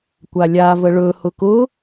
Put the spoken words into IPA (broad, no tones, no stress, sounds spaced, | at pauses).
kʷ a lʲ a v ə ɭ ɵ h ʊ k ʊ